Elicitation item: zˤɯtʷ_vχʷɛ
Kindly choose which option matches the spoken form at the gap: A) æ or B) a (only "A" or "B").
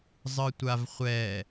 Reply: B